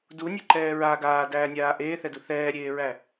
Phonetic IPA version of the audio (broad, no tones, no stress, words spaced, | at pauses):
dunʲeǃɛː ɹa ɡaːdæːnʲaː ʔeːθɛdu θɛːɾʲeːɹæ